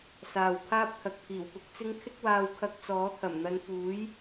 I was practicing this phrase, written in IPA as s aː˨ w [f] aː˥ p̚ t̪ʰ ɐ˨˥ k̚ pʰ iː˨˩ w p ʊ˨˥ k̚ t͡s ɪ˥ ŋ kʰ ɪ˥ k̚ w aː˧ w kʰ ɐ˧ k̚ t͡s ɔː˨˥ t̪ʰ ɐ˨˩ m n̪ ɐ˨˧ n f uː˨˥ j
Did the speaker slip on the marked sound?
yes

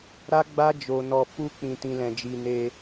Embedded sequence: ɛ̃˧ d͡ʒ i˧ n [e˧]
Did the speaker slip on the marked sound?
no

